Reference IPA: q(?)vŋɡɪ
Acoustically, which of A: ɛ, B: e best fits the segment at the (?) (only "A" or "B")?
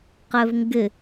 A